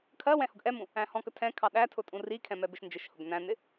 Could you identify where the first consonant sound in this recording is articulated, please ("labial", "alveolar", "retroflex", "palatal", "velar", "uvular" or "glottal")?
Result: velar